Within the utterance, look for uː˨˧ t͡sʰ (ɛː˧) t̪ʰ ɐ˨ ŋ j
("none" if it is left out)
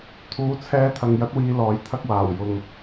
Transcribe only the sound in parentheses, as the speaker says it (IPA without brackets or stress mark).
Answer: ɛː˧